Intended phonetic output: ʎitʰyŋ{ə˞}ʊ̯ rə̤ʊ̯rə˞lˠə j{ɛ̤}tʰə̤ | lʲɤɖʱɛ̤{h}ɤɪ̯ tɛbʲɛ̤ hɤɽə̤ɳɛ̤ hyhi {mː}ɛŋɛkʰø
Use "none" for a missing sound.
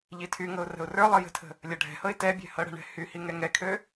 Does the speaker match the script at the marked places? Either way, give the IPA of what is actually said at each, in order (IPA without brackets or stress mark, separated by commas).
ɤ, ə̤, h, ŋ